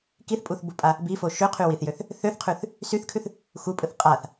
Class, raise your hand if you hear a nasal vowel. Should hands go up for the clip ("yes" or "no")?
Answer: no